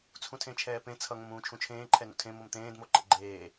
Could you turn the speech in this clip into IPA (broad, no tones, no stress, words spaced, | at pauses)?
t͡sʰũtʰẽt͡ʃʰɛːpẽ t͡sʰʌ ŋõmũːt͡ʃʰũt͡ʃʰẽː ǃʰɛnṵtʰẽ momt̪ẽːd moǃḛɡ͡ǃeː